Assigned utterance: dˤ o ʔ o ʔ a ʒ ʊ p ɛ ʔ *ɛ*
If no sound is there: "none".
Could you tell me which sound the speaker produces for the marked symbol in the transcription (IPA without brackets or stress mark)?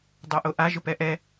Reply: ɛ